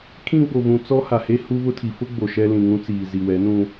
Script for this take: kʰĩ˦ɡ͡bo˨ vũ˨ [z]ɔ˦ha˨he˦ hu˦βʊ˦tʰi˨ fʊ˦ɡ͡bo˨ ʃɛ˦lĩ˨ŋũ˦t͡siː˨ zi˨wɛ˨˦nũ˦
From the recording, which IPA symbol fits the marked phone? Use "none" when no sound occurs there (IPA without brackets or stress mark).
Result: t͡s